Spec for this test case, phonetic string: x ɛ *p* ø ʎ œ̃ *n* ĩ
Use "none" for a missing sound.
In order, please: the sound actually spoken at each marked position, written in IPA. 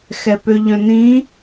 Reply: p, n

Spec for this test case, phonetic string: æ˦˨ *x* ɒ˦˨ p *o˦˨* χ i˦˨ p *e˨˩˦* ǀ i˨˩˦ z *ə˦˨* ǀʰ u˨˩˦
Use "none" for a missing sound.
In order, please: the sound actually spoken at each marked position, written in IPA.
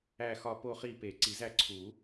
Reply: x, o˦˨, e˨˩˦, æ˦˨

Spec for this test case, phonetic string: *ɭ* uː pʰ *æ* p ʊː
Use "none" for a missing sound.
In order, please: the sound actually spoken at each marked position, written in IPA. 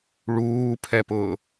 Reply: ɭ, ɛ

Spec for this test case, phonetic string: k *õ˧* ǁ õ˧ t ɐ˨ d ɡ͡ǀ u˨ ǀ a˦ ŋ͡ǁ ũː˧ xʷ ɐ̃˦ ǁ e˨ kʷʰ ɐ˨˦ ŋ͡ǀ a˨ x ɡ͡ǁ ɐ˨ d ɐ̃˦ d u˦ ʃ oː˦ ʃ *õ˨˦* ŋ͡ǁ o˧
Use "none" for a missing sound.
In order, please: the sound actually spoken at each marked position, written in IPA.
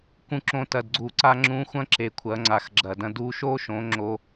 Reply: ũ˧, õ˨˦

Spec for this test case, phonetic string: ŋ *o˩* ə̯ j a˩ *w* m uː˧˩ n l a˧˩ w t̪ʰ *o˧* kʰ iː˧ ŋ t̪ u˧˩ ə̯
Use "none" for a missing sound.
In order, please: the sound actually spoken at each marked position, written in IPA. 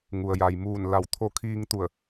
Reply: u˩, j, o˧

